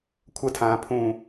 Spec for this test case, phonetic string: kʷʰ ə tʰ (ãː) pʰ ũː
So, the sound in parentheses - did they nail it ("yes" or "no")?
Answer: yes